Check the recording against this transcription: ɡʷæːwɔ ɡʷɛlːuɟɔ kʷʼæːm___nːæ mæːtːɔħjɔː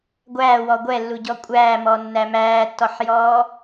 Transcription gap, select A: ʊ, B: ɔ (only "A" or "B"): B